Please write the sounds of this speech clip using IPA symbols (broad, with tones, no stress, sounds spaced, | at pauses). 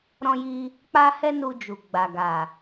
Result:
ɾ ɔ̃˧ j i˧ | k͡p a˦ h ɛ˦ n u˧ d͡ʒ u˨ ɡ͡b a˨ ɡ a˨